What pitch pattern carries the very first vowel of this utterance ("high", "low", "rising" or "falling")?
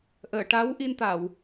low